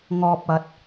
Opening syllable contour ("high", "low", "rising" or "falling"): high